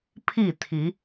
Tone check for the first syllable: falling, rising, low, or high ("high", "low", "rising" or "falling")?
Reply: falling